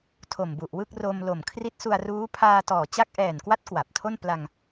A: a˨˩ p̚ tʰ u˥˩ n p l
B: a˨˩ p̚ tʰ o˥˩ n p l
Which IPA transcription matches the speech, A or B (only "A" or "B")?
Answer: B